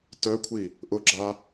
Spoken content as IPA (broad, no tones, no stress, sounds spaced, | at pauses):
t œ kʷʰ i | ʔ ʊ ɡ͡ǁ a